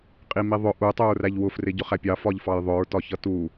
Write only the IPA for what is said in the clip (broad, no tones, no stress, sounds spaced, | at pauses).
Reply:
qʼ i m i ðˤ ʊ ʔ u tˤ u ɹ r æ ʎ w ʊ f r ɪ ɟ ʊ χ æ pʲ ɑ f ɒ ʎ f ɑ j ðˤ ʊ ɹ t ɒ ç ʌ t u